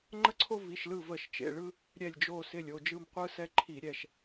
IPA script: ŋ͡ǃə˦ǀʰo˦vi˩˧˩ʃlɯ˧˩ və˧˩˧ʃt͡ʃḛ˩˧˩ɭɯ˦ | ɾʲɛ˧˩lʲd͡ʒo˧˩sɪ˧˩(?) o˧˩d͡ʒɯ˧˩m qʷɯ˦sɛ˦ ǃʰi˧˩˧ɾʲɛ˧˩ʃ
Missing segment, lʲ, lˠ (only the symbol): lʲ